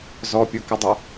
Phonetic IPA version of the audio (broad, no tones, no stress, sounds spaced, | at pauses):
z ɔ pʲ u k ə dˤ o